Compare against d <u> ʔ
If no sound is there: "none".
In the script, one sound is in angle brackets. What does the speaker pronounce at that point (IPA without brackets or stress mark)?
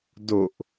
o